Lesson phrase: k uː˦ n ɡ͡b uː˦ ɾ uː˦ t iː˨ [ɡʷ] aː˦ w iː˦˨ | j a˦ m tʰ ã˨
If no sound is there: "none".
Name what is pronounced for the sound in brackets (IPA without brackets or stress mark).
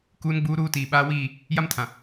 ɓ